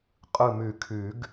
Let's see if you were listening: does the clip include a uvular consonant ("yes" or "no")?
yes